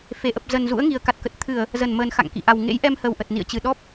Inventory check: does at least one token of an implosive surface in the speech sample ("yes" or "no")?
yes